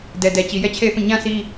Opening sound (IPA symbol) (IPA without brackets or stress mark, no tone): d